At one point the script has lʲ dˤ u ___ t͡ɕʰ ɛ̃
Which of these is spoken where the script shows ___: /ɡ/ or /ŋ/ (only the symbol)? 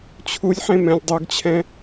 ɡ